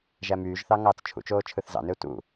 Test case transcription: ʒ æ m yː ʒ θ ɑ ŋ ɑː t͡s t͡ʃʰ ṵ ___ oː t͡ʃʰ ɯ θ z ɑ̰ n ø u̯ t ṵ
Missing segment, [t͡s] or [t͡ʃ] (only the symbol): t͡ʃ